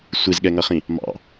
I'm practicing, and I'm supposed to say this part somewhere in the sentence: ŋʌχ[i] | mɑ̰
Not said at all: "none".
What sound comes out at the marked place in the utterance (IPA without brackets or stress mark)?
ĩ